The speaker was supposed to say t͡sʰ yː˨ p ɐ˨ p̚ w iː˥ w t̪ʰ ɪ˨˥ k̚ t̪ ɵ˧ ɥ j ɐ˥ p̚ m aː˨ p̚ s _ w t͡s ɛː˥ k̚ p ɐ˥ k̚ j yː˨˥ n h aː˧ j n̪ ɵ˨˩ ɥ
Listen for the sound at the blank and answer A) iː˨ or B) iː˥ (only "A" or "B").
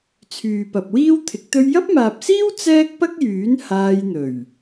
B